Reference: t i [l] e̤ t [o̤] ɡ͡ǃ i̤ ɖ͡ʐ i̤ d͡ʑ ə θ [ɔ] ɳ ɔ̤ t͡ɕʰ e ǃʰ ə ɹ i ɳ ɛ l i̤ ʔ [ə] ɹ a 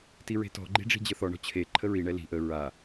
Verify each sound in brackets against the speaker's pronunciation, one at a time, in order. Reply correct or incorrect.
incorrect: ɹ, incorrect: ɔ̤, correct, correct

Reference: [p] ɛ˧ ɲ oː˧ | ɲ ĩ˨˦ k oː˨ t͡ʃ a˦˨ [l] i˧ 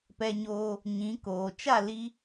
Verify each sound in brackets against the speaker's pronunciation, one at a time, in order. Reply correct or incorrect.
correct, correct

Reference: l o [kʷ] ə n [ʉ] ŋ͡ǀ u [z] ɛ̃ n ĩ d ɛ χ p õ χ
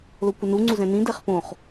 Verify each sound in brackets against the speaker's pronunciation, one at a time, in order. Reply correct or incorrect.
correct, incorrect: u, correct

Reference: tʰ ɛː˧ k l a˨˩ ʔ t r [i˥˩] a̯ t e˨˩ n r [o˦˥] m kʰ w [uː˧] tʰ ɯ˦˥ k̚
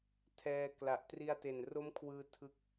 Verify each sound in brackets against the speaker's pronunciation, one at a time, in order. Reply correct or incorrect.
incorrect: i˧, correct, incorrect: ɯː˧

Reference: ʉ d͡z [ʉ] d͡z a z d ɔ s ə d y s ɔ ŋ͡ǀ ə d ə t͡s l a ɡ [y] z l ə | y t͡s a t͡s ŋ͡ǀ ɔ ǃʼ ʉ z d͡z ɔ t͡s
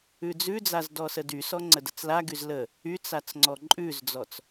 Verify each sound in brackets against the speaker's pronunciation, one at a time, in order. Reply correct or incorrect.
correct, correct

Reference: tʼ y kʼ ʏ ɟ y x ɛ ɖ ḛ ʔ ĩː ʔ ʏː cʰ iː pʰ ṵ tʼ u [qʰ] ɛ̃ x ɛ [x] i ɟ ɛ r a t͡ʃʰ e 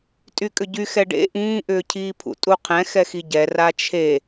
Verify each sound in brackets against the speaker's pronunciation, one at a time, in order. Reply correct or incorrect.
correct, correct

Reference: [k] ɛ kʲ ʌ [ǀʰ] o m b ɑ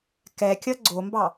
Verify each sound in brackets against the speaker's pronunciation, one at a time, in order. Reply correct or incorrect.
correct, incorrect: ɡ͡ǀ

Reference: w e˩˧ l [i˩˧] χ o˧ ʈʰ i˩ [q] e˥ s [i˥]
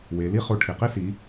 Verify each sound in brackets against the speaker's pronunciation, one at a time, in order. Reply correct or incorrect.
incorrect: i˥, correct, incorrect: i˩˧

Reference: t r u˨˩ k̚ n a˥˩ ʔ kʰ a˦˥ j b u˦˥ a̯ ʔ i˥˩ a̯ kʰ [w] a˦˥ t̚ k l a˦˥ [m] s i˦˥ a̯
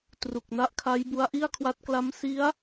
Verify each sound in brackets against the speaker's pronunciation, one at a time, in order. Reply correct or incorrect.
correct, correct

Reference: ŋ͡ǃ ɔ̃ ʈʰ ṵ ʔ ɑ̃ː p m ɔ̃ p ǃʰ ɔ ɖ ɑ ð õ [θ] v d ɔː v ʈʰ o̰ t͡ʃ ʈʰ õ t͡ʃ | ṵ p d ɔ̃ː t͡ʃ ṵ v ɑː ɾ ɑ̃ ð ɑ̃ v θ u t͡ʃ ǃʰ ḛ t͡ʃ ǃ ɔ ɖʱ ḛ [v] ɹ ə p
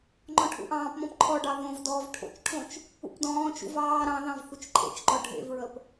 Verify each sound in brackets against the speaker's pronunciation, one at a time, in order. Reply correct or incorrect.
incorrect: none, correct

